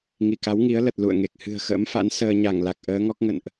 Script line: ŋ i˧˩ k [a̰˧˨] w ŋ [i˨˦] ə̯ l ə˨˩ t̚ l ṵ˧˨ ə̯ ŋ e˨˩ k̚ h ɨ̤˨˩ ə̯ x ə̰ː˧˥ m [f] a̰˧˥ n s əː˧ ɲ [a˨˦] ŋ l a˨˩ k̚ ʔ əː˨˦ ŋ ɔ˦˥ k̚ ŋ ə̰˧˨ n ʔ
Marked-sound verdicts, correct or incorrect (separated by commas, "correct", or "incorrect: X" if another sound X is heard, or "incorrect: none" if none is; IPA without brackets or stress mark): incorrect: a˨˦, correct, correct, incorrect: a˧˩